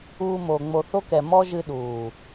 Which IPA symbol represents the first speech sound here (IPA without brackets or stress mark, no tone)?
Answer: uː